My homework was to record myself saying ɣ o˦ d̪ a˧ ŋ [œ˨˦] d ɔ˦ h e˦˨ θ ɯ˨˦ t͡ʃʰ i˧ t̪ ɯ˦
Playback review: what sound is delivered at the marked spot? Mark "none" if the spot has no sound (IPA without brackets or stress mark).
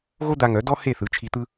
œ˨˦